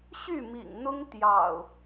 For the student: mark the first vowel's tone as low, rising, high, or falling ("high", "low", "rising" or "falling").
falling